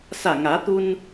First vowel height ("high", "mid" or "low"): low